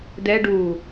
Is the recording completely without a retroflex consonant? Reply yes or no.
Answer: no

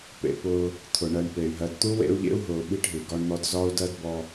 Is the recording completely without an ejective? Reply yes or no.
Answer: yes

